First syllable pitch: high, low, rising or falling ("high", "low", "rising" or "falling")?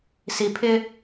low